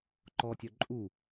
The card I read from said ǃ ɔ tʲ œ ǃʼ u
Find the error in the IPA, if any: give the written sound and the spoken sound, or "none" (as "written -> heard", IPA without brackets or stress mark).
none